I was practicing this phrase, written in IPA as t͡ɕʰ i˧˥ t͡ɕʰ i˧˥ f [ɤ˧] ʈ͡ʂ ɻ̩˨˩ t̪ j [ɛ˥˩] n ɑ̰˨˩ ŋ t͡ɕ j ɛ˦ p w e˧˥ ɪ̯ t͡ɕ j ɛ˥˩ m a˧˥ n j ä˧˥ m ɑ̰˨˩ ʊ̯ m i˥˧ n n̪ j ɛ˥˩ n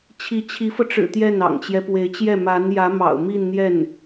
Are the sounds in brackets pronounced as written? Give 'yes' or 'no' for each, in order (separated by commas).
yes, yes